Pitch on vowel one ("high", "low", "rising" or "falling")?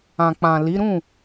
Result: low